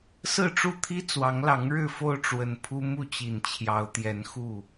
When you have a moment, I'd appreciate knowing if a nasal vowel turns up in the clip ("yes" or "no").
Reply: no